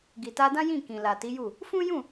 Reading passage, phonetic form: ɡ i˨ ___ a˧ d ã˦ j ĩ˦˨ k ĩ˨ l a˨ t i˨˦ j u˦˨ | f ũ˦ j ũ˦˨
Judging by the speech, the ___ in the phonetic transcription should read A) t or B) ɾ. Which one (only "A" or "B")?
A